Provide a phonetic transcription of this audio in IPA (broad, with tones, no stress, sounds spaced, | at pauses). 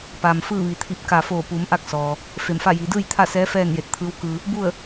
p a˩ m f ɯː˥˨ ʋ i˩ t̪ʰ i˧˩ p̚ k a˧˩ f oː˧˩ p u˩˧ m ʔ a˥˨ k̚ s ɔː˩ | f e˧˩ m f a˥˨ j iː˩˧ d ɯː˥˨ j t̪ʰ a˥˨ s ɛː˧˥ f ɛː˥˨ n j e˧˩ t̚ t̪ʰ ɯː˧˥ w k ɯː˧ | b u˥˨ ə̯